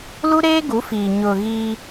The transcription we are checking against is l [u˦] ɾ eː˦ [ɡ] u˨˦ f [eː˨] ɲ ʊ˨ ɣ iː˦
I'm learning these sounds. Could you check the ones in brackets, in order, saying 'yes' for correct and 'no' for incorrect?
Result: yes, yes, no

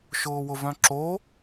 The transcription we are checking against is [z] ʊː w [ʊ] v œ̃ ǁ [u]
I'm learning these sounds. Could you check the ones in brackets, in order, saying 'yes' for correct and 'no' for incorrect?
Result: no, yes, no

